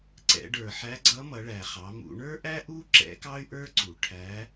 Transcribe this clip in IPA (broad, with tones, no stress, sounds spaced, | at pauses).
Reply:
ǀ ɛ̰˩˧ ɖ ə˞˩ ħ æ˧˥ ɡ͡ǀ ʌ˧˥ m ʌ˩˧ ɭ æ˩ χ ɑ˩˧ m ṵ˩˧ ɳ ə˞˥ ʔ æ˥ ʔ u˥ ǁ ɛ̰˧˥ k ɑ˥ y̯ ʔ ə˞˥ ǀ u˩ ʈʰ æ˧˥